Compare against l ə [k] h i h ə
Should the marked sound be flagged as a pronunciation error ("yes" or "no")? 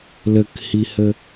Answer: no